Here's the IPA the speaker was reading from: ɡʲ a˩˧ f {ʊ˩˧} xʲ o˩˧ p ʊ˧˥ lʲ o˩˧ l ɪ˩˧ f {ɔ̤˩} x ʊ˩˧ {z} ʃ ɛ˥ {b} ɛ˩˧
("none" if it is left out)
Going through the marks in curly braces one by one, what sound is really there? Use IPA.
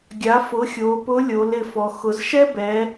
ʊ˩˧, ɔ˩, z, b

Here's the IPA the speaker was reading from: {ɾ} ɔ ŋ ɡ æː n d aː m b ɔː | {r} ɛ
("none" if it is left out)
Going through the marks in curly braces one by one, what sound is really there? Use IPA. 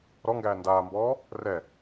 ɾ, r

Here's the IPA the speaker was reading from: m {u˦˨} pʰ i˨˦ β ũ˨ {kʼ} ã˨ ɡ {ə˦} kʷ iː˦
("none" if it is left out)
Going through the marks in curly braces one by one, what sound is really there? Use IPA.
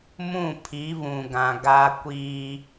ũ˦˨, ɡ, a˦

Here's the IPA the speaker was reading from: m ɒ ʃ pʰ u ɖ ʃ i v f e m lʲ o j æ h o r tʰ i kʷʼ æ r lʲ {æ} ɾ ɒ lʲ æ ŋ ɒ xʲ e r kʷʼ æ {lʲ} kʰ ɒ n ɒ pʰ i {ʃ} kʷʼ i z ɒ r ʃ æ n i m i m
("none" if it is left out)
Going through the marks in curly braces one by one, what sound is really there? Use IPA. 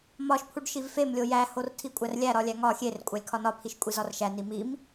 æ, lʲ, ʃ

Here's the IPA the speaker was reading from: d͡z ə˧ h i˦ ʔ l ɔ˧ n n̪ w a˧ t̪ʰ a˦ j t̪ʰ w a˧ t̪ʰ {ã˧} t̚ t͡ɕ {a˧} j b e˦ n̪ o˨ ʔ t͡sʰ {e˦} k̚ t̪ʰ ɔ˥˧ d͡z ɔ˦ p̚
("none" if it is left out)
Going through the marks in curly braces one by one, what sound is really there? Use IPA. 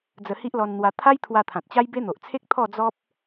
ã˨, a˦, e˦

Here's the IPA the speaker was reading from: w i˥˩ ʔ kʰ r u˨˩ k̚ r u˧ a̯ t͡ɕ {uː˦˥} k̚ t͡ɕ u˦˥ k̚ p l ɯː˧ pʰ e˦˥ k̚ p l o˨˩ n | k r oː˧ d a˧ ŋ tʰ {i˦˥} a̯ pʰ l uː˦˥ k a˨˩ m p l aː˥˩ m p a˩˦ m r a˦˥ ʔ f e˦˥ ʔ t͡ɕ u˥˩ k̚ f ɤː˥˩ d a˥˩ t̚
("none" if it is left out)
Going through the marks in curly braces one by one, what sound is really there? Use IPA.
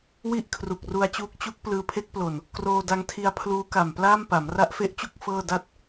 uː˦˥, i˧

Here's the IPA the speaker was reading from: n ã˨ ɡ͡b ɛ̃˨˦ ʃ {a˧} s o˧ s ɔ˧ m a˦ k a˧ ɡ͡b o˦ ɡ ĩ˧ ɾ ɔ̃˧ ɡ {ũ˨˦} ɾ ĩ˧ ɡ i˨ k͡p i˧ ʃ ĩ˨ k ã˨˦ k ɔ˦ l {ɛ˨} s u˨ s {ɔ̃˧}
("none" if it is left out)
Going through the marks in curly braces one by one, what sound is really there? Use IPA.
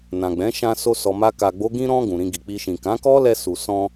ã˧, ũ˨, ɛ˧, ɔ̃˧

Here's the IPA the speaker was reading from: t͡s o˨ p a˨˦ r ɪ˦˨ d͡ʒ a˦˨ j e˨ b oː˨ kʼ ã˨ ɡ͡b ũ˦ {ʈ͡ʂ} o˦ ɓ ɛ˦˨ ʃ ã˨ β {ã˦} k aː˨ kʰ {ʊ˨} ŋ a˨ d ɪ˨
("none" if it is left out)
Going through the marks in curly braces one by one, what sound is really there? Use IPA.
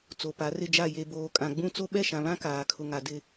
t͡s, ã˦, ʊ˨

